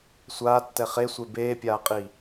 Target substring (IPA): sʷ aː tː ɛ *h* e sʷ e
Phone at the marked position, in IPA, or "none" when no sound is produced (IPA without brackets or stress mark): χ